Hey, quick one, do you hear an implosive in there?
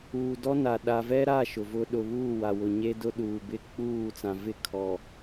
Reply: yes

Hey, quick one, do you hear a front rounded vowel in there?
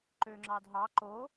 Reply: yes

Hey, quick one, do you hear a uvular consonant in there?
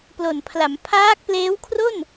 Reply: no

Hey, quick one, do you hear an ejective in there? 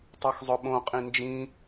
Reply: yes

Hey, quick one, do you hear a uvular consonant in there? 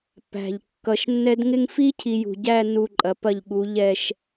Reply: no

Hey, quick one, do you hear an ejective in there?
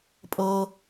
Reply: yes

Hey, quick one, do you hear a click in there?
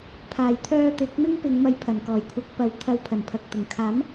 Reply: no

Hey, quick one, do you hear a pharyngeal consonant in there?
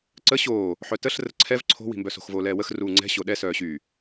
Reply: yes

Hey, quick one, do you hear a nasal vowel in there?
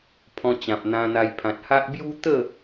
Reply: yes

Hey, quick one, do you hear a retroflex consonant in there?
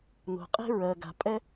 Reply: no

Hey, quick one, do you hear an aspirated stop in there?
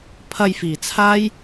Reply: yes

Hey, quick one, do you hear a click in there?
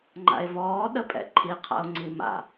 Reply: yes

